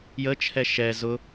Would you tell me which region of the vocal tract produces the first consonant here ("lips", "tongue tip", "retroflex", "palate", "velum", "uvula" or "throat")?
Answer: palate